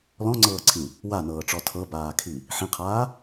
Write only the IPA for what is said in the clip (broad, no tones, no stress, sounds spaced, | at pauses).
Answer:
l ɔ̃ ŋ͡ǀ ɤː ǀʰ ĩ | w a n ɤː ʈ͡ʂ ɔ tʰ ɤ b aː kʰ i | ħ ĩ qʰ aː